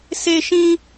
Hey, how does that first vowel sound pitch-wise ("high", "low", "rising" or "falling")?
high